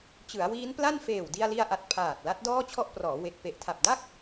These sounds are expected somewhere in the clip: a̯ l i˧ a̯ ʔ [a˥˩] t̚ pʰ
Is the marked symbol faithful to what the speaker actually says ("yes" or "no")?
no